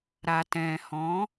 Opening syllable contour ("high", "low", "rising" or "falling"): low